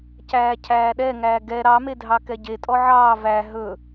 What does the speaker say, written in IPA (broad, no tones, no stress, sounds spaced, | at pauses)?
c æː cʰ æː ɗ ɛ ŋ æː ɡ ɛ ɾ ɑ m e dʱ ɑ k ɛ ɟ e tʼ ɔ ʕ ɑː v æ ɦ ɵ